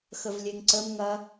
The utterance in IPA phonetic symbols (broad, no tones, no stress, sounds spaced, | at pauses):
x ə v lʲ e ŋ ǀ ə m ŋ ɐ